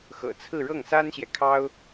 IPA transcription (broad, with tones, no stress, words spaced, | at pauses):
xɤ̰˨˩t͡sʰɹ̩˥˧ ɻɤ˥˩ŋsa˥nɕjɛ˨ kʰɑ˥ʊ̯